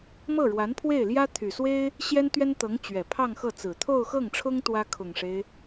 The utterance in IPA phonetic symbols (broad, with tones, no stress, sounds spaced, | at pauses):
m ɤ˥˩ ɻ w a˧˥ n pʰ w e˥˩ ɪ̯ l j ä˥ t̪ʰ y˨˩ s w e˥ ɪ̯ | ɕ j ɛ˥ n t̪ ɥ ɛ˥ n t̪ ɤ˧˥ ŋ t͡ɕ ɥ ɛ˨˩ pʰ ɑ˥˧ ŋ x ɤ˥˩ t͡s ɹ̩˨˩ t̪ʰ o˥˧ ʊ̯ x ɤ˥˩ ŋ ʈ͡ʂʰ ʊ˥ ŋ t̪ w ä˥ kʰ ʊ˨˩ ŋ ʂ e˦ ɪ̯